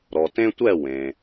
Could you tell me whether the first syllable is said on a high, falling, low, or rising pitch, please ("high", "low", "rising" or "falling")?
low